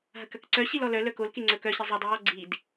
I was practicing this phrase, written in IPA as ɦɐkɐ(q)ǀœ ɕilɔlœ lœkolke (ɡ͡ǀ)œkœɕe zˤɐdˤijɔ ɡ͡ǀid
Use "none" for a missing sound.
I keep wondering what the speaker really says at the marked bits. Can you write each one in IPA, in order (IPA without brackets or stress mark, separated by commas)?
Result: k, ŋ͡ǀ